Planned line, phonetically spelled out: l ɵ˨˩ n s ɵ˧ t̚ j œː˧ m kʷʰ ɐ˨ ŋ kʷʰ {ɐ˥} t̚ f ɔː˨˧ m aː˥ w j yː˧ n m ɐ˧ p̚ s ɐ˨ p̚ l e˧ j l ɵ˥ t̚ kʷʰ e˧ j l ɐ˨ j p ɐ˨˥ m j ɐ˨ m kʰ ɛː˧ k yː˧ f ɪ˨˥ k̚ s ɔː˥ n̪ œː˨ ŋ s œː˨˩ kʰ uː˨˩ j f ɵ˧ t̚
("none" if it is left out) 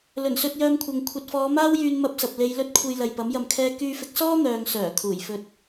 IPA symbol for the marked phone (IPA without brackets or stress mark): ɐ˨